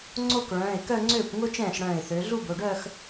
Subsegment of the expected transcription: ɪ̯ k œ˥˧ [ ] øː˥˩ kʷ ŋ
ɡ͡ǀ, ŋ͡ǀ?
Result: ŋ͡ǀ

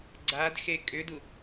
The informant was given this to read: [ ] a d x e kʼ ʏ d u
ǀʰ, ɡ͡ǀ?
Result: ɡ͡ǀ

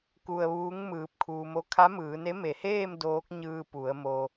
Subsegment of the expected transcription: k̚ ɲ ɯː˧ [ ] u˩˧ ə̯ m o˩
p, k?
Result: p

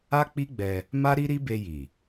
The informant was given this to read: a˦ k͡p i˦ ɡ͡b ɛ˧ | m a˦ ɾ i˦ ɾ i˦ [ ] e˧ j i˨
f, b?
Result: b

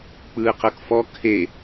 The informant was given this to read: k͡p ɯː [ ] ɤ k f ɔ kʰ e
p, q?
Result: q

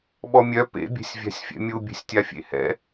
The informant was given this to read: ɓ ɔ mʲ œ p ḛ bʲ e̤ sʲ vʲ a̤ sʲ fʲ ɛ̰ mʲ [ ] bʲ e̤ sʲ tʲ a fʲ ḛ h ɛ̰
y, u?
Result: u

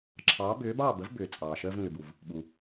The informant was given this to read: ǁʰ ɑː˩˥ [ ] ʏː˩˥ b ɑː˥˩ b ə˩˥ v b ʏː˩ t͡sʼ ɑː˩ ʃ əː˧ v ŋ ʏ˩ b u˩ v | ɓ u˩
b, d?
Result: b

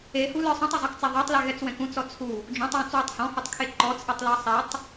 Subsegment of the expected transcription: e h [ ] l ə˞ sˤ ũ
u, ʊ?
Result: u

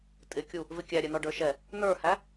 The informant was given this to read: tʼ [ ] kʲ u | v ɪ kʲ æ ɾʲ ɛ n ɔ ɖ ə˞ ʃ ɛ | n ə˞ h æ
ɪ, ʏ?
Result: ɪ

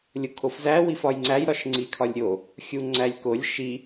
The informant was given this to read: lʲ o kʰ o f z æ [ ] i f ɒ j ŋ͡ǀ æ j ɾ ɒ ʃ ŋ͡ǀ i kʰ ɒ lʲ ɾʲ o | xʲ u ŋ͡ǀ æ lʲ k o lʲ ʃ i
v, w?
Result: w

